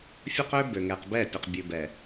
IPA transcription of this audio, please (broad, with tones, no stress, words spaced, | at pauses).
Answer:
fʲɵ˦qø˦ bø˨ŋɛ˨qbɛ˦˨ pʲɵ˨qbʲʉ˨bɛ˨